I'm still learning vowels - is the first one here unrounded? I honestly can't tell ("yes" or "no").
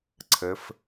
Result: yes